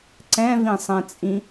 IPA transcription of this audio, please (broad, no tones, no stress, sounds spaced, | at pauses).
ǀ ɛ̃ v ĩ sˤ ɛ̃ t͡sʼ ĩ